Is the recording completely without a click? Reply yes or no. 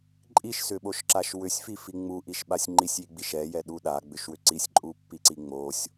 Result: no